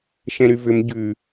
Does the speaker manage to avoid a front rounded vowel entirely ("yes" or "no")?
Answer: no